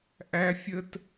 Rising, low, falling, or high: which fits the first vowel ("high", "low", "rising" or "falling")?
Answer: high